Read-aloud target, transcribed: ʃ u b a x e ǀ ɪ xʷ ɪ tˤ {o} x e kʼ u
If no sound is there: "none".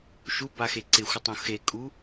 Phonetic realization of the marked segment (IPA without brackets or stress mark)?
õ